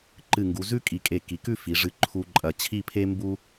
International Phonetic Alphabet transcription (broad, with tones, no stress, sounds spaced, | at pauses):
ǃ ɨ˧˩ ŋ ɡ u˩˧ z ʉ˥ kʼ i˧˩ kʼ e˧˩ k i˩˧ k ʉ˥˧ f i˩˧ ʐ ɨ˧ ǃʰ u˧ ǃʼ ɐ˧˩ t͡ɕʰ i˥˧ pʰ e˥ m b u˥